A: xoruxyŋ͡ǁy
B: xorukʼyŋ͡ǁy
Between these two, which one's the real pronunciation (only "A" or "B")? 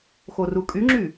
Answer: B